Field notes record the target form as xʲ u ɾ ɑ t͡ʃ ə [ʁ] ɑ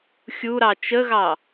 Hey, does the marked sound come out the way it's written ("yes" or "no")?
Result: no